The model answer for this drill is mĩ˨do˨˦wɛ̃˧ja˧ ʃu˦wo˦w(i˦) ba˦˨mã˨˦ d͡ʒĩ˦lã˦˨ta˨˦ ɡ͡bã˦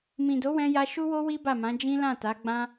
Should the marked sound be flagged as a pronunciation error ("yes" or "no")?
no